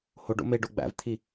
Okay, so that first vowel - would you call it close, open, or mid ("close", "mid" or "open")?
mid